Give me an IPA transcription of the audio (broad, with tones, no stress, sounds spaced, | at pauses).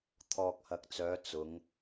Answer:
t̪ʰ ɔː˨ k̚ h ɐ˨ k̚ t͡s œː˨˧ t͡s ʊ˨˧ ŋ